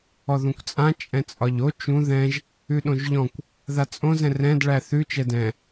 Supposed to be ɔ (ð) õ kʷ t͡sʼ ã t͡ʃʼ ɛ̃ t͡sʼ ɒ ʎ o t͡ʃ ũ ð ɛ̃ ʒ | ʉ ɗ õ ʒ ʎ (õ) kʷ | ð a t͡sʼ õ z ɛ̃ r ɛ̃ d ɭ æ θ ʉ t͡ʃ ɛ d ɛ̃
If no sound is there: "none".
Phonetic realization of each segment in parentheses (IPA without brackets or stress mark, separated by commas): ð, ɔ̃